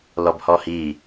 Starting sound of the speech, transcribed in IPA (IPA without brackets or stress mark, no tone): l